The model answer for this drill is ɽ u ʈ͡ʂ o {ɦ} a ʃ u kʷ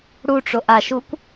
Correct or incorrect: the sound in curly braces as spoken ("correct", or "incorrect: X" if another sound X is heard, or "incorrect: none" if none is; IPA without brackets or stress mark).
incorrect: ʔ